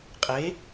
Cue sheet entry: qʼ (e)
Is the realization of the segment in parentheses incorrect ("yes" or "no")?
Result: no